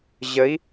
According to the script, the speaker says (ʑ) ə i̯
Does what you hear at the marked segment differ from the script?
no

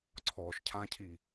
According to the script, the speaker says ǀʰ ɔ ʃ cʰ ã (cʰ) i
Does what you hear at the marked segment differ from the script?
no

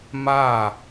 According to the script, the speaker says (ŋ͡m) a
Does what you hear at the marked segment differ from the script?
yes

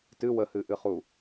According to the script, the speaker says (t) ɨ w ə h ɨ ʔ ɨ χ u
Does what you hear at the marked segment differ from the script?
no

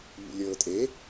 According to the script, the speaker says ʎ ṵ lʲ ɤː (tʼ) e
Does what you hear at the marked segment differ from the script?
no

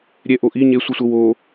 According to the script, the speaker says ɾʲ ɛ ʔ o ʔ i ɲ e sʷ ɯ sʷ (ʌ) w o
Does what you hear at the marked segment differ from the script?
no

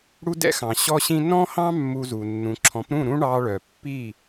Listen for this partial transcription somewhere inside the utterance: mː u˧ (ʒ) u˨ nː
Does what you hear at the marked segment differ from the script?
yes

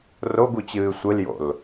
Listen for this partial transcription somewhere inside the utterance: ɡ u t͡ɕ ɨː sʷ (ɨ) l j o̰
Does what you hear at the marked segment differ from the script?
no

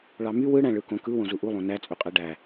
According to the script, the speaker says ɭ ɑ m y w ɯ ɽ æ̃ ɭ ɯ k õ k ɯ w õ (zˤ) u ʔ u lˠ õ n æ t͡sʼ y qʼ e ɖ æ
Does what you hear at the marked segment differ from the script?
yes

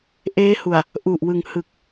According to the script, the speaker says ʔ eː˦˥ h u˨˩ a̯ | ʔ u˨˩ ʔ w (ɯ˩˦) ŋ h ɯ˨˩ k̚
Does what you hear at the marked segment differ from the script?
yes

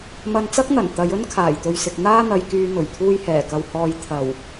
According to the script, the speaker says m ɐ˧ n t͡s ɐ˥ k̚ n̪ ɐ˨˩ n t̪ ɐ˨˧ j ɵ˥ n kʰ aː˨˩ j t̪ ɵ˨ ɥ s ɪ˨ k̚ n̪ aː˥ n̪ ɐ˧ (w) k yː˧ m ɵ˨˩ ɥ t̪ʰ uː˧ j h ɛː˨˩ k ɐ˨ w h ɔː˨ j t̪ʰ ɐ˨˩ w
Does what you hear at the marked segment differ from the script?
yes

